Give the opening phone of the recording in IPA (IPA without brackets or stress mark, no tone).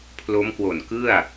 pʰ